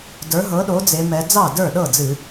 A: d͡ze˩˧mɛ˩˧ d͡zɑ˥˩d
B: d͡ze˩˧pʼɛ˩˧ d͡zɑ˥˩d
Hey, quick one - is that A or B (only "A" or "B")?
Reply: A